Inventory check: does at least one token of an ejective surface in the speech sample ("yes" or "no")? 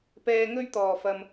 no